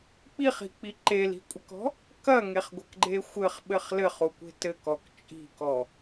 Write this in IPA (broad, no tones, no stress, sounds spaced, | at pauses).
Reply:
k͡p i χ i̤ k͡p i ǃ e l i̤ kʷʼ ɘ k ɔ̤ | k ɐ ŋ e χ ɡʷ ɐ k ɡ͡ǃ e xʷ ɘ χ ɓ ɘ χ l ɘ χ u kʷ e̤ t ɘ k ɔ k t͡ʃʼ i̤ k ɔ